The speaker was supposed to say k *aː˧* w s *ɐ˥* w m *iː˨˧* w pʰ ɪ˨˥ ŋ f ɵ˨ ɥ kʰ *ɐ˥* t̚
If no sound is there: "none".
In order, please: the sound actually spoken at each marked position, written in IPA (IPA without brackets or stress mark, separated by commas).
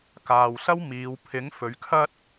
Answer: aː˨, ɐ˥, iː˨˧, ɐ˥